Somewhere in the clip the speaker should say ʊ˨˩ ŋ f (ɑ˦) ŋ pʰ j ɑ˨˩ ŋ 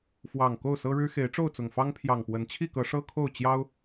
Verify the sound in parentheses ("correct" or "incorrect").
correct